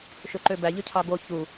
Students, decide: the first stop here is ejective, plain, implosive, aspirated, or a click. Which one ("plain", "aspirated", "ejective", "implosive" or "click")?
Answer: click